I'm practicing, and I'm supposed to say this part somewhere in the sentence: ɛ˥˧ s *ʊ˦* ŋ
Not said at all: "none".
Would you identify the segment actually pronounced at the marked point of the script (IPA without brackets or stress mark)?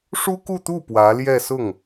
ʊ˥˩